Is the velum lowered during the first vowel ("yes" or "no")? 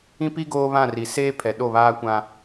yes